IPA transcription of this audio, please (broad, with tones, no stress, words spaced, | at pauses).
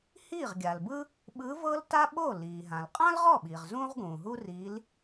hiː˥˩ʁɡʲa˩lbɯ˥ | ɓɯ˧˥vɤ˥l ta˥ɓo˥˩ liː˩ɦã˩lqʼã˥l ʁɔ˥˩ɓiː˩ʁ zũː˥ʁɡũː˩ɦu˥riː˧˥l